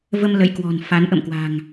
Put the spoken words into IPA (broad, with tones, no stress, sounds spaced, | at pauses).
v ə˧ m l ə̰˧˨ j k w ɔ̤˨˩ n f a˨˦ n ʔ ə̰˧˨ m k w a̤˨˩ ŋ